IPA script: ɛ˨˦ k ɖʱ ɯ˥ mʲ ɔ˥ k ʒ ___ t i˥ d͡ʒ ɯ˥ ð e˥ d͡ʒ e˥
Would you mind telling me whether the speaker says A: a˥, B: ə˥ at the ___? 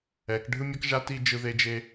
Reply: A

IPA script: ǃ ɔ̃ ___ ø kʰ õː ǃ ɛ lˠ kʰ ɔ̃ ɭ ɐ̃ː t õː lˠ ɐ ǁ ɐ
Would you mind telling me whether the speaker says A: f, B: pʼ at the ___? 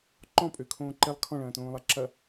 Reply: B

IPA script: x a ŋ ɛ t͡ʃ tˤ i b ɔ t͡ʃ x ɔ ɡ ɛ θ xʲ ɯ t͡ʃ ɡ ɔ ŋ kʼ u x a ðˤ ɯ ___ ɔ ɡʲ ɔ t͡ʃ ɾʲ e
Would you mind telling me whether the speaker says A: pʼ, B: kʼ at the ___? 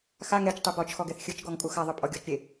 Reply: A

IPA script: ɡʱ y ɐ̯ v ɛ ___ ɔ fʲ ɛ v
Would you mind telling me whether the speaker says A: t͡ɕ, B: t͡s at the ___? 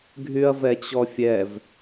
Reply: A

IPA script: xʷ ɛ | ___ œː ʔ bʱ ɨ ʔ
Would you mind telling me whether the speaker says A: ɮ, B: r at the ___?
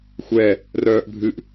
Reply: B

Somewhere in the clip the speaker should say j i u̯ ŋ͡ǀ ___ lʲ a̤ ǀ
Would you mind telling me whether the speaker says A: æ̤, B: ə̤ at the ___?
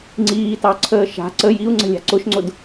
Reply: B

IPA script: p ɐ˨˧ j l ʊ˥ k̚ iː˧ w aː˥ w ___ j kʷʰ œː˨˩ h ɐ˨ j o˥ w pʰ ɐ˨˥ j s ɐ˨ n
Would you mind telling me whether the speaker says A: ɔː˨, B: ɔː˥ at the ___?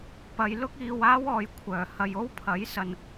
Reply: A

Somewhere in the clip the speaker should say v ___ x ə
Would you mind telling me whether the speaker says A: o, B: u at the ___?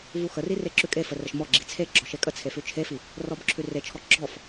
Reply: B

